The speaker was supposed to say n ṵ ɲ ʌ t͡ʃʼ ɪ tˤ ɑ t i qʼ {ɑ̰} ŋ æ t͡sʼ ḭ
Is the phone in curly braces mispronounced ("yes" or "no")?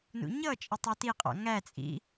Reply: no